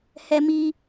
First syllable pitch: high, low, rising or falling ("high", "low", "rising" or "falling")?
low